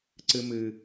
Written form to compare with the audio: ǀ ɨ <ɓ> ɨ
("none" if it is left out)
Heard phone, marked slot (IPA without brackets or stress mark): m